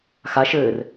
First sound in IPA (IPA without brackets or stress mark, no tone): x